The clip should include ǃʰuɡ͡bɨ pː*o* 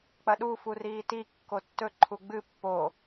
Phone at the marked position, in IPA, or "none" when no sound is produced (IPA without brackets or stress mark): o